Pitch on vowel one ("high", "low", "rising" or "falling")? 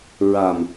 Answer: low